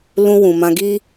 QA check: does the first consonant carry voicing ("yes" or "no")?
yes